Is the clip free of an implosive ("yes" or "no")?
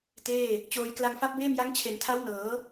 yes